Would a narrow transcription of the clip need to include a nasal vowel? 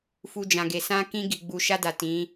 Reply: yes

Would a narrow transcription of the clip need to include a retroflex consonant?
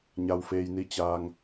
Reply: no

